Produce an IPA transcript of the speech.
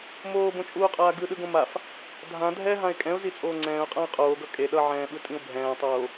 m oː b õ t͡ʃʼ uː qʼ aː ɡ ɯ ɗ ɯ ɡ õ m a f | dʱ ã dʱ ɛ ɦ ã ɪ̯ kʼ ɛ̃ ʊ̯ z i t͡sʼ oː ŋ͡ǀ ɛ̃ː ʊ̯ qʼ ã ɪ̯ qʼ oː ɡ ʌ kʼ e ɗ ʌ ʕ ɛ̃ː ɓ ɯ tʼ ĩ ʊ̯ bʱ ɛ̃ː tˤ oː

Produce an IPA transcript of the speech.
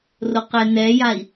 r o q ɛ n ɛ j a i̯

